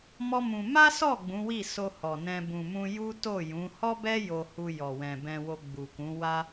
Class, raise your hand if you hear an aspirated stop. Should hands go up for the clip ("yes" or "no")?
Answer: no